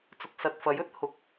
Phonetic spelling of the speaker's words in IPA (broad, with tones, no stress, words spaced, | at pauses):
t͡sʊ˨k̚sɐ˨t̚fɐ˨˥jɵ˨˥t̚ hʊ˨˥k̚